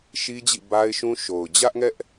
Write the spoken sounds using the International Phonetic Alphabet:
ʃ i˦ d͡ʑ ḭ˦˨ b a˦ ɪ̯ ʃ ũ˦ ʃ o˨ ʊ̯ d͡ʑ ä˦ ʔ ŋ ɛ˦ ʔ

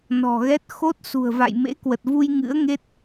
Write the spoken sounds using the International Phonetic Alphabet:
n ɔ̤˨˩ ɣ ɛ˦˥ t̚ x o˦˥ t̚ s ṳ˨˩ ə̯ v a̰˧˨ j m ḛ˧˥ k w ə˨˩ t̚ v u˧ j ŋ ɨ̰˧˥ ə̯ ŋ e˦˥ t̚

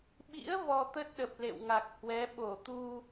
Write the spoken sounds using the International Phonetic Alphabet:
ɓ ḭ˧˥ ə̯ v ɔ˧ t̪ ə˦˥ t̚ ɗ ə˨˩ p̚ l ḛ˧˨ w ŋ a˨˩ k̚ h w ɛ˨˦ ɓ o˧˩ t̪ u˧

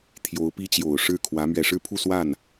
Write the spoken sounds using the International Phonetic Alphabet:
t̪ʰ j o˧˥ ʊ̯ p i˥ t͡ɕ j o˨˩ ʊ̯ ʂ ɻ̩˥˩ kʰ w ä˧˥ m ɥ ɛ˨˩ ʂ ɻ̩˥˧ pʰ u˥˧ s w a˥˩ n

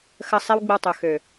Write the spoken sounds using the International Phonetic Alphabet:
x ə˧ sˤ e˦ w ɡ͡b ə˧ w tˤ ø˨ x ø˨

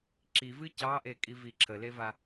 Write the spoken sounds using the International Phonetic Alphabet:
ǁ i v ɨ c ɑ ʔ e kʼ i v i ǁʰ ə l e v a

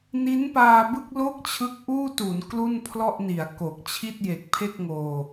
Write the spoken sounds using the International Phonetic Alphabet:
n i˦˥ n p aː˧ b ɯ˥˩ k̚ l o˥˩ k̚ t͡ɕʰ ɯ˦˥ k̚ ʔ uː˥˩ t u˩˦ n k l u˥˩ n pʰ l ɔ˥˩ ʔ n i˩˦ a̯ k o˨˩ k̚ t͡ɕʰ i˥˩ t̚ j e˨˩ k̚ pʰ e˥˩ k̚ ŋ oː˧

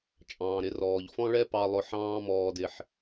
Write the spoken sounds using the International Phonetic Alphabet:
t͡ʃʼ ɑ̃ː˩ ɾ ɪ˧ r ɔː˩ ʎ f ɔ̃˥ ɭ ɛ˥ p ɑ˧ lˠ ʊ˧ ħ ɑ̃ː˥ m ɔː˧ d ɪ˧ ħ

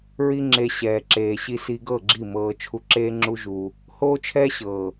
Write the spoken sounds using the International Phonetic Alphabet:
ɹ i˦ ŋ͡ǁ e˧ ɕ ɛː˨ ǁ eː˨ ɕ i˧ s i˧ ɡ ɤ˦˨ ɡ͡ǁ i˦˨ m ɤː˧ t͡ʃʰ u˧ ǁ eː˦ ŋ͡ǁ u˦ ʒ u˧ | h oː˦ t͡ʃʰ ɛː˦ ɕ ɤː˨

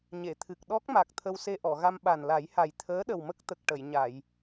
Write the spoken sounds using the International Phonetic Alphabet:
ɲ e˨˩˨ t̪ʰ ɨ˨˩ k̚ ɗ ɔ˦˥ k̚ m a˨˩ k̚ t̪ʰ ə˧ w s e˧ ʔ ɔ˨˩˨ ɣ a˧ m ɓ a˨˩ n l a˨˩˦ j h a˨˩ j t̪ʰ əː˧˥ ɗ ə˨˩ w m ə˦˥ k̚ t̪ ə˨˩ k̚ ʈ ə˨˩˨ j ɲ a˨˩˨ j

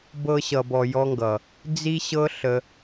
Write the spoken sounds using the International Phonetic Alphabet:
b ɤ˧ ɕ ʌ˨ b ɔ˨ j ɔ˦ ŋ ɡ ʌ˨ | d͡z i˦ ɕ ɤ˦ ɬ ə˧

